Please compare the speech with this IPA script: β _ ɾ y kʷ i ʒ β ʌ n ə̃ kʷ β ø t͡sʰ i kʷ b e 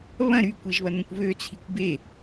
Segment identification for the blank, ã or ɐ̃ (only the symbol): ɐ̃